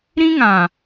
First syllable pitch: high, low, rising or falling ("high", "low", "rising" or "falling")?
high